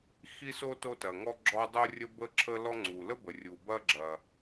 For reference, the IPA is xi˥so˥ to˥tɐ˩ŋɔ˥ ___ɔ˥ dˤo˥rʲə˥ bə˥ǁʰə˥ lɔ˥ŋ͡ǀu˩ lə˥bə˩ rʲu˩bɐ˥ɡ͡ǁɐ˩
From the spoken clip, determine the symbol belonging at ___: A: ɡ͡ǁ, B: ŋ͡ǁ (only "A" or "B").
A